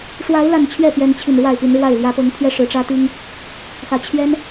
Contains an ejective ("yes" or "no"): no